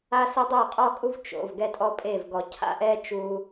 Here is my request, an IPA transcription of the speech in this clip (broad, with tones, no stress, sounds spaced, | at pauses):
a˦ s ɛ˦ dˤ ɤ˦˨ qʼ ɔ˦ kʼ u˦ v t͡ʃ o̰˨ v ɡ ɛ˦ tʼ ɔ˦ pʼ e˦˨ v ɡ ɔ˨ cʰ a̰˦ ʔ ɛ˦ t͡ʃ u˧